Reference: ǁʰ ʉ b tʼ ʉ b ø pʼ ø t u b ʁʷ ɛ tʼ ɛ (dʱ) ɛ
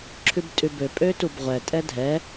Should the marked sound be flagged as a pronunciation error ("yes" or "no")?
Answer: no